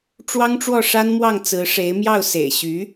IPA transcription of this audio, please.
ʈ͡ʂwɑ˥ŋʈ͡ʂwɔ˥˩ʂa˥nmwɑ˥˩ŋ t͡sɹ̩˧˥ʂe˧˥ɪ̯mjɑ˥˩ʊ̯ sḛ˨˩ɪ̯ɕy˧˥

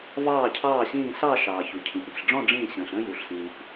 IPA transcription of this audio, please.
vɑː˧˩cʰɑː˧˩ɕĩː˧˩ sɑ˥˧ʃɑː˩ çu˩cʰĩ˩pɳi̤˩ɬɖ͡ʐɔ̃˥˧ ɖ͡ʐĩː˧˩ɕə̃ː˩ɬ ə̃ː˥˧ju˩ɬsĩː˩p

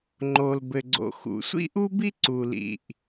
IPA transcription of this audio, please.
ŋ͡ǃo˩lbɘ˩ɡ͡ǀo̰˩xṵ˩ sʷḭ˥ʔu˥bi˥ ǀu˩lḭ˩ʔ

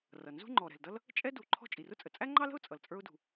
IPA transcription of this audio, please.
rʌ˩ nzṳ˥ŋ͡ǃɔ˩ɾɛ̤˩ldʌ˥l | t͡ʃʼɛ˥ du˩ ǃʰɔ̤˥ t͡ʃʼi˩rʊ˥t͡sʼə˩ t͡sʼæ˥ŋ͡ǃɑ˥lə̤˥ʊ̯ t͡sʼʌ˩lt͡sʼə˞˥ʊ̯dṳ˩

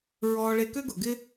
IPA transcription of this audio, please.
ɹɔː˧ɭe˧kø˥ɡʊ˩ ɡɪ˥

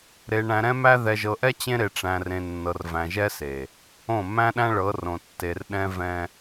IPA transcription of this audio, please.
ɾe˨ ɳæ̃˨ɾɛ̃˦mæ˦ ðɛ˨ʒɤ˨ʔɛ˦ t͡ɕẽ˦ɾe˨ ʈ͡ʂæ̃˨rẽ˨nːɤ˨r væ̃˨ʒɛ˦se˨ | õ˦˨ mæ̃˦ɗæ̃˦ ɭɤ˨˦rõ˨ tːe˨rɗɛ̃˦vɛ̃˦

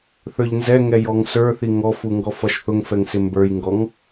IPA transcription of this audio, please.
θə˞ʎnzɛŋɛ jɔŋsə˞θi ŋɔfu ŋɡɔfʌʃθʊŋfɛŋ sɪmbə˞jŋɡɔŋ

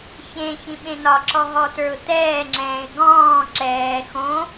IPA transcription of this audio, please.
çẽ çĩɓẽnɒǁɔ ɦɔtə˞ʊ̯tɛːŋ͡ǁɛ̃ːɪ̯ ɡɔ̃ː ǁɛː xõ

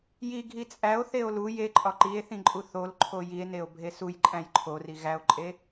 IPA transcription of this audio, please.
ji ɡʱit͡sʼæo̯ θeo̯lu jeǃʼɒ ǃie̯θĩǃʼu θol ǃʰojie̯neo̯ bʱesuj ǃʼæ̃jǃʰori ɣæo̯ǃʼe

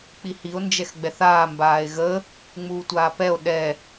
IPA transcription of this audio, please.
k͡pihio̯ nd͡ʒɛxɡ͡bɛθaː mbaːe̯ɣə | ŋ͡muːtʷaːpɛo̯ ɗɛ

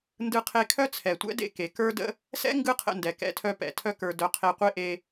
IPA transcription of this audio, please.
ndɯ˧qʰe˧kʰœ˦ t͡sʰɛ˨tʷɛ̰˦dḛ˧ ke˨kə˞˦də̰˦ | sɛ̰˦ ŋɡɯ˦qʰə̰˧ndɛ˨ kɛ̰˧tʰœ˧pɛ̰˨ tʰœ˧kə˞˨dœ˨ qʰe˧qʷe˦ʔe˧

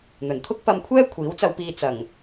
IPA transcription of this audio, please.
n̪ɵ˨˩nt̪ʰʊ˥k̚pɐ˧mkʷʰɛː˥ kʷʰiː˨˥wt͡sɐ˧wpiː˧ t͡sɐ˨˩ŋ

